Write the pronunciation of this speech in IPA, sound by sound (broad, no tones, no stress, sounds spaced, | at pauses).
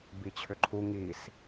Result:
b i t͡ɕʰ ʏ ǃʰ u ŋ i s